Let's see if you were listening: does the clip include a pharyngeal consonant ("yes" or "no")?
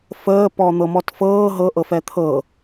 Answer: no